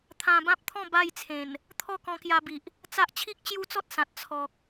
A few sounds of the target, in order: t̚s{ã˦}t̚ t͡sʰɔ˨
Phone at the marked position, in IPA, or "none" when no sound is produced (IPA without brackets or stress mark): ã˨